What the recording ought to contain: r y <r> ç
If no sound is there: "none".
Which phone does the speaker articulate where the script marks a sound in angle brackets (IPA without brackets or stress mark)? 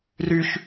none